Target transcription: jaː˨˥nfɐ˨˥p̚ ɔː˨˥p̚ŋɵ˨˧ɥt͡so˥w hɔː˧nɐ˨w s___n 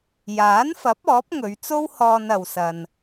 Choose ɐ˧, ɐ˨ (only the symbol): ɐ˨